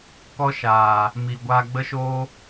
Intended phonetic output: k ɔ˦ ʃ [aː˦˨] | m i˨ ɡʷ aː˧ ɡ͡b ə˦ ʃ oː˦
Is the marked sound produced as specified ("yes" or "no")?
no